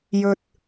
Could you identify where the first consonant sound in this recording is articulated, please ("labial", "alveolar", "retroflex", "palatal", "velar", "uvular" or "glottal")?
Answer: palatal